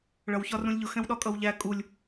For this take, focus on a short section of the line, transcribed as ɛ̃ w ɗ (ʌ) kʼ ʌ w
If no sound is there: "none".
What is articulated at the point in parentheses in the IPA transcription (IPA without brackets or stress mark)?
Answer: ɒ